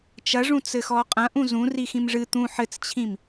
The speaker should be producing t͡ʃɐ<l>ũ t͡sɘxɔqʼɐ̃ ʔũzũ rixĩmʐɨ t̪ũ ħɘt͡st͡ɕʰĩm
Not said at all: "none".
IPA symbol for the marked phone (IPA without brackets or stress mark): ʐ